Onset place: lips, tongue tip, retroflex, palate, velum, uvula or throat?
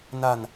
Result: tongue tip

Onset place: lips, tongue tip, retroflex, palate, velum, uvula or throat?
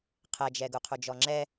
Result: uvula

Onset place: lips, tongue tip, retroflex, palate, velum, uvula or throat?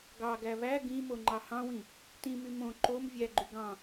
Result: velum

